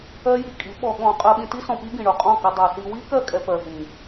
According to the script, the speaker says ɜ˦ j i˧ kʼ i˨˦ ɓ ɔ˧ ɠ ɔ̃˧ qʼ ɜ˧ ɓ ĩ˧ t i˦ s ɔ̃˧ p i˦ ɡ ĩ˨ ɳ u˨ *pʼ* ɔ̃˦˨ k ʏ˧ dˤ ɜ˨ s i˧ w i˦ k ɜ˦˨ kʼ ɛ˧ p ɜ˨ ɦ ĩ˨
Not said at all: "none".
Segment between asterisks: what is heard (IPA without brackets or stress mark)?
qʼ